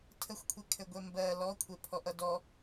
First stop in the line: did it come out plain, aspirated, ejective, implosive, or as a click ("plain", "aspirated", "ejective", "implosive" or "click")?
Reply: aspirated